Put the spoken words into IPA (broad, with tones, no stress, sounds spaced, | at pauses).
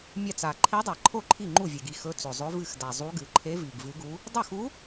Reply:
mʲ a˥˩ t͡s a˨˩ ǃʰ e˧˥ dˤ a˨˩ ǃʰ o˥˩ ǃʰ i˥˩ ŋ͡ǃ u˥˩ vʲ e˨˩ ɡ i˥˩ x ɵ˧˥ t͡s ɵ˨˩ zˤ ɵ˧˥ v ɨ˥˩ x d a˨˩ zˤ u˧˥ ɡ ɨ˨˩ ǃʰ e˧˥ v i˨˩ ɡ v ɨ˧˥ ɡ u˧˥ | dˤ ɵ˥˩ x u˧˥